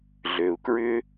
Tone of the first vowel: low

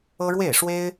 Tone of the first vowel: high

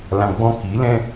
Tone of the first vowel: low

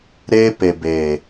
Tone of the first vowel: high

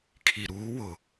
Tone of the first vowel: low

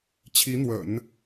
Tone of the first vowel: rising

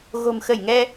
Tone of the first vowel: low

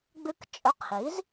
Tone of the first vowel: high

